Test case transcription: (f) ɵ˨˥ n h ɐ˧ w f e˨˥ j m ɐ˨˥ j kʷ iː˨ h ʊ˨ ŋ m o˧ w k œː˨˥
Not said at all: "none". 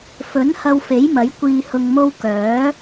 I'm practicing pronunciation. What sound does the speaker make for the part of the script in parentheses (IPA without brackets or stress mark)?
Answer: f